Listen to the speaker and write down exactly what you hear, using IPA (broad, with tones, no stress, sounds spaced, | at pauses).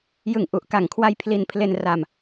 j ɯ˨˩ ŋ ʔ u˨˩ ʔ k a˨˩ ŋ kʰ w a˧ j pʰ l i˧ n pʰ l e˧ n r a˧ m